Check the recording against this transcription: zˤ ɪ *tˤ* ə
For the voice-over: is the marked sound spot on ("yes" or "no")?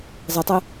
yes